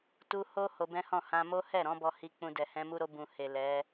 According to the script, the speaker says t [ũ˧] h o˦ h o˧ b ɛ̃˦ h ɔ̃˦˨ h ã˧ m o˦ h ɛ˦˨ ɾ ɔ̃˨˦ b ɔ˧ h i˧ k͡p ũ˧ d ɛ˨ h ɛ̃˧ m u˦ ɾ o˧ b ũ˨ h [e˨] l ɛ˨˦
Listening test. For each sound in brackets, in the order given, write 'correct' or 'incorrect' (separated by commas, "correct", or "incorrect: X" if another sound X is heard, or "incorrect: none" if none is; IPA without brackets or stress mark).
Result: incorrect: u˧, correct